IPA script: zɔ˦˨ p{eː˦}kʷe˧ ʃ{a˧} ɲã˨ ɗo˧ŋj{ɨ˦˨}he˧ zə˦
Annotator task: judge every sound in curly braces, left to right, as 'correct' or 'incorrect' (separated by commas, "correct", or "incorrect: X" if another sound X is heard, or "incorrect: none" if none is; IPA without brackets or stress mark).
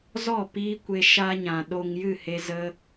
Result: incorrect: iː˦, correct, correct